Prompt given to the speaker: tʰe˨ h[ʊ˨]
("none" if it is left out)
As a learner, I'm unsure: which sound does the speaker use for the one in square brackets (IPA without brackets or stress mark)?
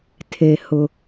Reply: ʊ˨